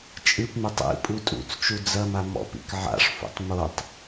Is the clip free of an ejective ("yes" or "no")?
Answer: no